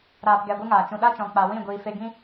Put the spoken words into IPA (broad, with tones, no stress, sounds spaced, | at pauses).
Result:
ɾ aː˧ p ɡ ɛ˧ ɡʷ ɨ˦ ŋ aː˨ t͡ʃ ũ˨ ɗ a˦ t͡ʃ ɔ̃˨ k͡p a˨ w ĩ˦˨ ɡʷ iː˨ f e˧ ɡ ĩ˦